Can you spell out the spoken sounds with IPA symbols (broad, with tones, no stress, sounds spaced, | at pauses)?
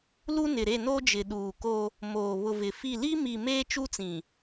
l u˦ n ɪ˨ ɾ e˦˨ n o˦ d͡ʒ ɪ˨ ɗ uː˨ k o˦ | m oː˨ β ʊ˨ v ɪ˨ f i˦˨ l i˦ m i˨ m eː˦ t͡ʃ u˦ t͡s ĩ˨